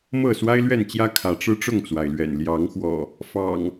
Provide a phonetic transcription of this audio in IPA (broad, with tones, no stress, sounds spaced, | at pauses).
m ɤ˥˨ s w a˦ ɪ̯ l ɥ ɛ˥˨ n t͡ɕ j ä˦ kʰ ä˨˦ ʈ͡ʂ ɻ̩˦ ʈ͡ʂ ʊ˥˨ ŋ t͡s w a˩ ɪ̯ l ɥ ɛ̰˨˩ n l j ɑ˨˦ ŋ x w ɔ̰˨˩ | f ɑ̰˨˩ ŋ